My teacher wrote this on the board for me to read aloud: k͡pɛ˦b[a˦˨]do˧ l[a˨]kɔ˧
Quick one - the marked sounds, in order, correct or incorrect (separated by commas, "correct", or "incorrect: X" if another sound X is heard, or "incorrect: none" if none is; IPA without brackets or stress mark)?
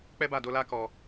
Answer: correct, incorrect: a˦